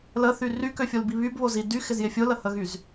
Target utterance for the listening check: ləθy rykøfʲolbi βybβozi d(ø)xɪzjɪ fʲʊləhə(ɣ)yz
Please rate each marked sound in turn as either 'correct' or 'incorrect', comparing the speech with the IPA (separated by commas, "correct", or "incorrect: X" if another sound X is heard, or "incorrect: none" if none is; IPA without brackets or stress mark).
incorrect: y, correct